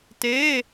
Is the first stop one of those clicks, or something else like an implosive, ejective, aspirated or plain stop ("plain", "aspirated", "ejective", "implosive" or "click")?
plain